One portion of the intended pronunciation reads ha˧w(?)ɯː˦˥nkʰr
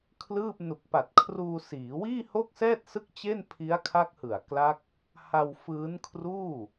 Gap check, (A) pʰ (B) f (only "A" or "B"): B